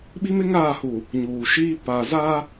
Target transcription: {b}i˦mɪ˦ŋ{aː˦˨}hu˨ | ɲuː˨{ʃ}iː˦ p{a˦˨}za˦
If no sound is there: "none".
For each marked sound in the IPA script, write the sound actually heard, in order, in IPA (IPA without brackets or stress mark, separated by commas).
ɓ, aː˦˨, ʃ, a˨